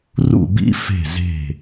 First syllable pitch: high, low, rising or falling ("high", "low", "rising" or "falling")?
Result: falling